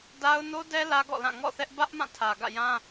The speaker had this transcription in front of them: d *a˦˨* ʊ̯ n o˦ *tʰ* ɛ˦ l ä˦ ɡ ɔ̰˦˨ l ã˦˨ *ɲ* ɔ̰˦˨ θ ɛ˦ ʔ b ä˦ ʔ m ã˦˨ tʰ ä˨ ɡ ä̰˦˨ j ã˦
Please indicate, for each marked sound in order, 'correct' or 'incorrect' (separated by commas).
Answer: incorrect, incorrect, incorrect